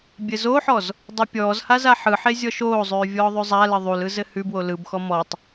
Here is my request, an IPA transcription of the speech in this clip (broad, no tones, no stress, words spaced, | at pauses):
bʲɘzoħɔz | dˤupʲɔːzha zaħɯħe zʲɔʃoːzˤʉː vʲɔːðˤʉzˤalɘ ðˤulɯ zɘhʉbwo lɯbxɔ mɔtˤ